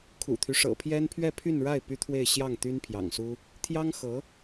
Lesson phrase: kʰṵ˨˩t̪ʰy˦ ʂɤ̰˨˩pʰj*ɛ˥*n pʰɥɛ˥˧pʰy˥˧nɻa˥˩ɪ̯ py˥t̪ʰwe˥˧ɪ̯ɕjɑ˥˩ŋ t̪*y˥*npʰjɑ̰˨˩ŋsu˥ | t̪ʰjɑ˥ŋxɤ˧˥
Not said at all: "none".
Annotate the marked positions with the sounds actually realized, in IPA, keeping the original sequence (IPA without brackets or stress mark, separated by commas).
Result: ɛ˥, y˥